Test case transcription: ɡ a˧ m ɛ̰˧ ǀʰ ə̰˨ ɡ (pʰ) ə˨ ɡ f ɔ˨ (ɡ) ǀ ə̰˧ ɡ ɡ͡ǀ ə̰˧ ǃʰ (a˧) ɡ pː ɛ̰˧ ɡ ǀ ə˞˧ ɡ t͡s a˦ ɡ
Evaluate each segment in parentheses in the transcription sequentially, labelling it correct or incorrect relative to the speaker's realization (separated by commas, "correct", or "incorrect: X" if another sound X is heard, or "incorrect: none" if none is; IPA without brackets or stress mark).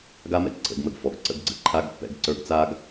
incorrect: m, correct, incorrect: a˦